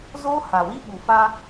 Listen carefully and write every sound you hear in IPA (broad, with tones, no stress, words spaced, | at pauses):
zoː˦ha˨wi˦ ɓu˨fa˦